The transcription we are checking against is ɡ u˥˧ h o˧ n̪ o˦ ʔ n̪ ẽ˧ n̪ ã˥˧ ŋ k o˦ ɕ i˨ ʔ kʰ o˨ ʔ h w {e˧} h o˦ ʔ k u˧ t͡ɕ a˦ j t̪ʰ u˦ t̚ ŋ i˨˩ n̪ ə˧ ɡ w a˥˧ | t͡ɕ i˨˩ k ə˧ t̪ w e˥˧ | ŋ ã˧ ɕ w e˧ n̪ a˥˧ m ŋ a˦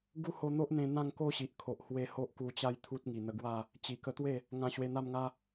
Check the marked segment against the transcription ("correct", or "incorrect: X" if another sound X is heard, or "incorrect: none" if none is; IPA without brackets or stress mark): correct